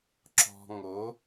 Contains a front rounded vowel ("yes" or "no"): no